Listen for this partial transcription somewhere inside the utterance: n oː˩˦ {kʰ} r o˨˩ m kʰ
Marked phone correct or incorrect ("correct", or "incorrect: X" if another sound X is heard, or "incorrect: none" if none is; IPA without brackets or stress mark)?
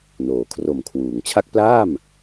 correct